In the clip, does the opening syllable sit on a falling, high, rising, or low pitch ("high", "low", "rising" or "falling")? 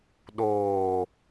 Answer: low